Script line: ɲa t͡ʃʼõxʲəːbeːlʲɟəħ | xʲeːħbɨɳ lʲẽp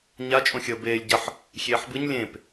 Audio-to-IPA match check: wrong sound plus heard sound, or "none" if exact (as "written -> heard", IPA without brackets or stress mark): ɳ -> ɲ